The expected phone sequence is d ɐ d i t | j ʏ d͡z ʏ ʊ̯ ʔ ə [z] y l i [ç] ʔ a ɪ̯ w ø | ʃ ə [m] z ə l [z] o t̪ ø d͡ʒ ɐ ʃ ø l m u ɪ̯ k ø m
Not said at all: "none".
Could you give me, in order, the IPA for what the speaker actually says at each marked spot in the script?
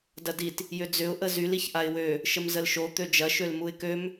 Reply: z, ç, m, ʃ

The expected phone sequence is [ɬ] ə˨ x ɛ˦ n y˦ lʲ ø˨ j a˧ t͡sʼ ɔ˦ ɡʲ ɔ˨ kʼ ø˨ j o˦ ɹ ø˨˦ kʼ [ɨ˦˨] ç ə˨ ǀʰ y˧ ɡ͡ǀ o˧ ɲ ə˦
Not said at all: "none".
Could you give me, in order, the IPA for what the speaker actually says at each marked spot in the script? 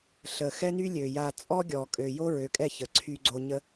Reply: ɬ, ɛ˦˨

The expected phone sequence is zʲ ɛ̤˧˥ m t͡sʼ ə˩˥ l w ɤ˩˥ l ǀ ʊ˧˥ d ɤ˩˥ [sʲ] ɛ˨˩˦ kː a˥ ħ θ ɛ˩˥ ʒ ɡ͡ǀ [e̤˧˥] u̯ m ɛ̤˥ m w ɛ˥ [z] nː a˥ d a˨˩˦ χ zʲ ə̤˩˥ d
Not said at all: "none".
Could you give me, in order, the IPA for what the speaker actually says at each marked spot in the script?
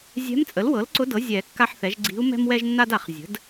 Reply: zʲ, i̤˧˥, ʒ

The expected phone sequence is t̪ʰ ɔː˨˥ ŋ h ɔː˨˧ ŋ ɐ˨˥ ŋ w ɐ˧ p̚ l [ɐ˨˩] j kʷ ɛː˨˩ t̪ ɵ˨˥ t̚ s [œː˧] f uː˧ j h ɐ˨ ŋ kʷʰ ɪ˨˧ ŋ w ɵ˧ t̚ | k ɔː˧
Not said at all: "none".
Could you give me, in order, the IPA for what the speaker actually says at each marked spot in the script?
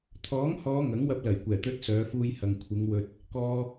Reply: ɐ˨˩, œː˨˧

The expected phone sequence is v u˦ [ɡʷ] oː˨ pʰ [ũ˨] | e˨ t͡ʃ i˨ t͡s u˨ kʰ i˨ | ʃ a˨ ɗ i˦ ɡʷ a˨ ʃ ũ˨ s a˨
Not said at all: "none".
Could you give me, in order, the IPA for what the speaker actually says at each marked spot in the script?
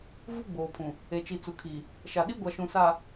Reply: ɡ͡b, ũ˨

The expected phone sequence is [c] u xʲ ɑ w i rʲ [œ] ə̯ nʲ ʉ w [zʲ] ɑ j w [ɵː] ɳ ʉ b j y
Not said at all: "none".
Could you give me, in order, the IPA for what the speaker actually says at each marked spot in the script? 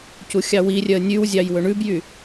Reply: c, œ, zʲ, ɵ

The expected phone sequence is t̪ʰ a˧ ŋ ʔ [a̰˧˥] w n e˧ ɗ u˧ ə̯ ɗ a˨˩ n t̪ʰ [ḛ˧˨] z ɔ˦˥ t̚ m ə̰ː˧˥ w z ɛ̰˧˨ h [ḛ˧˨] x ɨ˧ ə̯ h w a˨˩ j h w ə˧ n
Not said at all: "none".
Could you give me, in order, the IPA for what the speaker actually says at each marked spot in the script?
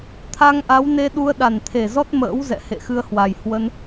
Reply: a˨˦, e˨˩, ḛ˧˨

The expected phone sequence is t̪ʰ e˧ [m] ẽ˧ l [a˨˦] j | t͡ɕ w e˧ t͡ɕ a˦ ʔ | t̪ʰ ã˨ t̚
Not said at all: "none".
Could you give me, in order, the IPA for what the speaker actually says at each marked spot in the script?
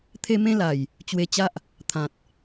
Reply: m, a˨˩

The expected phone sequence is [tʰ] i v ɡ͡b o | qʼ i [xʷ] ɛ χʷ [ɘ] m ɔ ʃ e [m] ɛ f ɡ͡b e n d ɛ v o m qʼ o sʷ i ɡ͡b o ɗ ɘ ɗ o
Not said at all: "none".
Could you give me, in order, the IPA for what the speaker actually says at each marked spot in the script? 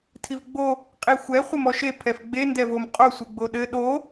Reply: tʰ, xʷ, ɘ, pʰ

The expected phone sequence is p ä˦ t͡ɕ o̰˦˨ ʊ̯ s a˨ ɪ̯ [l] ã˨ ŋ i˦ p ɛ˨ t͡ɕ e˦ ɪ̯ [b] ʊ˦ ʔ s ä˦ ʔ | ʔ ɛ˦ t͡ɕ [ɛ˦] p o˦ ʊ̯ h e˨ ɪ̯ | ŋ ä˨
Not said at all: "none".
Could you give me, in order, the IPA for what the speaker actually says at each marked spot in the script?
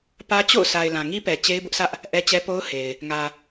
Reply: l, b, ɛ˦

